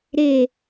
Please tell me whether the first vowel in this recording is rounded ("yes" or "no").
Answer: no